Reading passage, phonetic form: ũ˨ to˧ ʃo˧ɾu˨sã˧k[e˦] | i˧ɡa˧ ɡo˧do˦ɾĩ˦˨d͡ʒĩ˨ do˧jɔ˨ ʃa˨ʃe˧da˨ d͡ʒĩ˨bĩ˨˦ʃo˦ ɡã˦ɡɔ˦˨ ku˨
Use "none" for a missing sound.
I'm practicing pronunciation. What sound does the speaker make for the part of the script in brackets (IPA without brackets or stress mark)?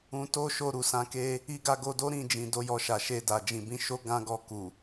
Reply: e˦